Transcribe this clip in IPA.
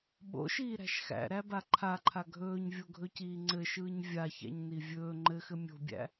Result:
ɓo̰ʃiːɾæ̤ʃ xæ̰ɾæba ǃʰaǃʰa ɡʱɵːɲvʲoɡʱɵciː ŋ͡ǀɘʃɯːɲ vʲaçæ̰ɲni vʲɵː ŋ͡ǃɘxɘ mʲo̤bʲæ̰

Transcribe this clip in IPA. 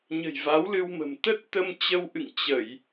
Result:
ɲə̤˨˩jva˨˦wlɨ˧wmə̤˨˩m t̪ə˦˥t̚t̪ə˧mt͡ɕə˧wʔɨ̰˧˨ŋ t͡ɕə˧˩˨j

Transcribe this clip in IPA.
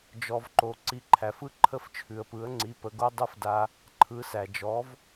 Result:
d͡ʒɔ˩vǃo˩ ǀi˩˥ǃʰæ˩fɯ˥ ǃʰə˥˩ft͡ʃʰʉ˩ə̯pɯ˩˥ə̯ ŋ͡ǀi˩˥pə˩˥ɡo˥ dˤɯ˥fda˧ | ǃʰɯ˩˥sæ˩d͡ʒɔ˩˥v

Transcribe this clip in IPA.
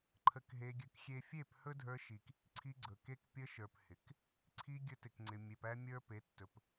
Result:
ǃʰə˧kɦe˧ɡʲə˧kxʲe˦ fʲe˦˨phɵ˦dʱə˞˧ʃi˨k | ǀʰi˧ɡ͡ǀɵ˨ ke˧kpʲə˧ʃə˞˨p hɪ˨k | ǀʰi˧ ɡʲɵ˧tɪ˨kŋ͡ǀɪ˨ mʲe˨pæ˦mʲə˞˦ pe˨˦tːɵ˨p

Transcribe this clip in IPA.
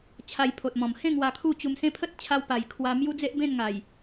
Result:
t͡ɕʰa˧jpʰo˨t̚mɔ̃˨˩m hẽ˥˧ŋ wa˧kʰu˥˧t͡ɕu˧msẽ˦ pʰə˦t̚t͡ɕʰa˧wpa˨˩j kʰwa˧mju˦d͡ze˦ʔ bẽ˥˧nŋa˨˩j

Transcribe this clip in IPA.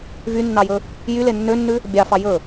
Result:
vynːɑjɵ | jy lenːønːʉ | bʲɑfɑ jɵ

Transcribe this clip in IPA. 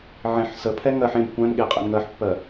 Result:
ʕẽħ səpʰɛ ŋɜħ ẽb kʷæ̃nɠe qʼɛ̰nŋɜħpːɜ

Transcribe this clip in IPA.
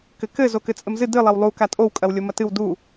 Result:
kɘkɘ zokɘt͡sʼɘmzɨ dɨ lˠɐwlˠu katʼow kʼɐwlʲomɐtɨw du

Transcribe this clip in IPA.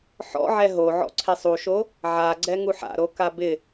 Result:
ħɔ̰ʕɛ ɦoʕɔ̰ǀʰesˤ uʃo | ʕaɡ͡ǀɛŋuħ a̰ɾoka bɪ

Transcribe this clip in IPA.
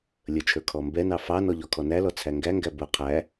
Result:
lʲət͡ʃʰə˞ kʰɔmbɛnɑ fɑnɔ ʎɔkʰɔnælɔ t͡sʰæŋɡæŋɡæ bʊ qʰæ

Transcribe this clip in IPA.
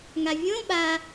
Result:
ŋavʲõ ɓa

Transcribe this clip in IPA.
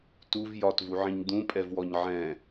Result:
tuv jɒtvuʕĩɲ d̪ũpʼɛvwɔɲ ʕɛ̃

